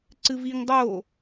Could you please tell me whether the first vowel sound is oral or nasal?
oral